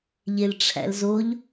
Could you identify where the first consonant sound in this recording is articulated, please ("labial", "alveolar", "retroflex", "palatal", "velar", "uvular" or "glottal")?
palatal